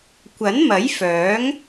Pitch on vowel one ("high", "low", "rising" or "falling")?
rising